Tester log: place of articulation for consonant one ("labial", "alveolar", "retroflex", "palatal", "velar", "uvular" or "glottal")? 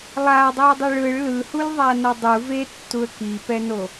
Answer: alveolar